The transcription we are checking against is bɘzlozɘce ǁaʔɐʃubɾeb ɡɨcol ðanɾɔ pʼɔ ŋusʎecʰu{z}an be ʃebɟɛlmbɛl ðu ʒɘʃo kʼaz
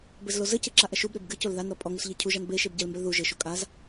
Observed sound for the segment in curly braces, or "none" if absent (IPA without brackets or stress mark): ʒ